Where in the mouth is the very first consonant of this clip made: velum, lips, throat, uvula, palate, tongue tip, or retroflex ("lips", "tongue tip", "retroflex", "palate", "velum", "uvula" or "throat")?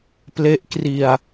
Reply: lips